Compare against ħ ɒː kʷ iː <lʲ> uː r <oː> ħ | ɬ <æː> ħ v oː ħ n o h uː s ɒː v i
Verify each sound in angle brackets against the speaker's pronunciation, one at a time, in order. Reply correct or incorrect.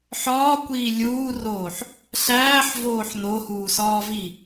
correct, correct, correct

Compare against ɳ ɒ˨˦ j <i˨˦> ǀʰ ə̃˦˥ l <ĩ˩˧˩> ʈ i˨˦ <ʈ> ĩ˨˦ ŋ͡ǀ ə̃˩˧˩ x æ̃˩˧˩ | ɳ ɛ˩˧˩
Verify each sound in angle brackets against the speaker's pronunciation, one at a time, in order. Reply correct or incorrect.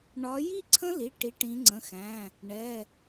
incorrect: i˥˧, incorrect: i˩˧˩, correct

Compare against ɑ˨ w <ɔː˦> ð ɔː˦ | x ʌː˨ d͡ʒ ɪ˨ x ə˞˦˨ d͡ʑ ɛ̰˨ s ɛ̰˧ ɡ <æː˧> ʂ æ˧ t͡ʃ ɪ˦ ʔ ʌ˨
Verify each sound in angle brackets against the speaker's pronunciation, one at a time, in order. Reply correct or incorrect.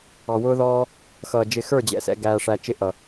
incorrect: ʊː˦, correct

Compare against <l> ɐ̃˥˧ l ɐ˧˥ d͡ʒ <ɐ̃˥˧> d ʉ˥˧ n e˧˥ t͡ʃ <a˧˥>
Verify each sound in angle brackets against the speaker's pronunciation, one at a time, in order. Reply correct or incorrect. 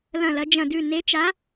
correct, correct, correct

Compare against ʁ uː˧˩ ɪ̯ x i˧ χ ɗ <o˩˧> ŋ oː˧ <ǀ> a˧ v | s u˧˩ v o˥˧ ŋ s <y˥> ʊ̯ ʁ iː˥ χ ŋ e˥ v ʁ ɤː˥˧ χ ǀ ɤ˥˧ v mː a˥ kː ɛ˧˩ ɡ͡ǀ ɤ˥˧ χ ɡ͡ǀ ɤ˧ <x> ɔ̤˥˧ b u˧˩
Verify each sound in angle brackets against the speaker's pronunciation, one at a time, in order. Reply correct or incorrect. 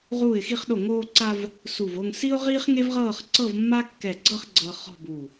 incorrect: o˧˩, correct, incorrect: i˥, incorrect: χ

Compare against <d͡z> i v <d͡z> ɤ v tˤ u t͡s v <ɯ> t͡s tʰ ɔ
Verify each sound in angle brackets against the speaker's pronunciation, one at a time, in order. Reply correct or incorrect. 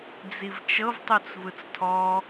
correct, incorrect: t͡ʃ, correct

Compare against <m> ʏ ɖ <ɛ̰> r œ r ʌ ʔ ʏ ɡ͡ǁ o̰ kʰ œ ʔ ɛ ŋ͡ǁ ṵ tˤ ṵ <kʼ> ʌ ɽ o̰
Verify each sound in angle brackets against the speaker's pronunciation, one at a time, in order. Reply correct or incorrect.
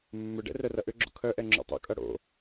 incorrect: mː, correct, correct

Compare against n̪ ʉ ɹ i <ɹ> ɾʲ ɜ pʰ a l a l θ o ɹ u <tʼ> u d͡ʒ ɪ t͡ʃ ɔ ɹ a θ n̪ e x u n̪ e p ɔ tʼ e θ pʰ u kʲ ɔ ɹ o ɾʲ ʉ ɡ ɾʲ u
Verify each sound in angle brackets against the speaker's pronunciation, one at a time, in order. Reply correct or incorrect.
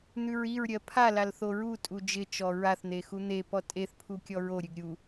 correct, correct

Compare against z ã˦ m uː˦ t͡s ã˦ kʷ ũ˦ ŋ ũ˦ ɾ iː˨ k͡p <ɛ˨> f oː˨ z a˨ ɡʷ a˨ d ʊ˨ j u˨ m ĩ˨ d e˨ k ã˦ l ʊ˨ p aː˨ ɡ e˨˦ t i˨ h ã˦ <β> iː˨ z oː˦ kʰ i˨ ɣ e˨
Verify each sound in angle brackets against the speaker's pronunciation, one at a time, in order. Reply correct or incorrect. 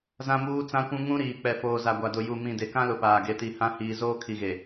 correct, incorrect: h

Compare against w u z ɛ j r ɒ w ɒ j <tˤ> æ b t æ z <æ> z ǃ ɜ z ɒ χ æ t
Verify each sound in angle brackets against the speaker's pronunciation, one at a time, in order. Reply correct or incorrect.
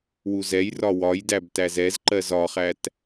incorrect: d, incorrect: ɛ

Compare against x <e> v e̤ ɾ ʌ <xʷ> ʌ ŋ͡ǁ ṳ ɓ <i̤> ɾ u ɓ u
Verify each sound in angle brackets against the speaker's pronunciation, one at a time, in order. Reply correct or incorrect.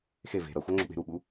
correct, correct, incorrect: e̤

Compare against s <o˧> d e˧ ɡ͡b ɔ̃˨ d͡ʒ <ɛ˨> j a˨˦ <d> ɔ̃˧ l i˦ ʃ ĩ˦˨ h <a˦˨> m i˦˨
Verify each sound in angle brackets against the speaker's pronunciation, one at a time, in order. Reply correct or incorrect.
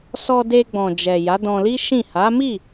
incorrect: ɔ˧, correct, correct, incorrect: a˨˦

